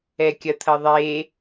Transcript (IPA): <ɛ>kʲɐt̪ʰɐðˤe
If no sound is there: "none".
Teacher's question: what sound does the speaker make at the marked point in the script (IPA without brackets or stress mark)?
ɛ